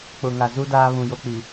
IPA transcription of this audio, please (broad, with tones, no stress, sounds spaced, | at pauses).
k͡p ʊ˨ ŋ a˨ z u˦ d aː˦ β ũ˨ j o˦ k͡p i˨